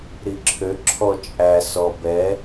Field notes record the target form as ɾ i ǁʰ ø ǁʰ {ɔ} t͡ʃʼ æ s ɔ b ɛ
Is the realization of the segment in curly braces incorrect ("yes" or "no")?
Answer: no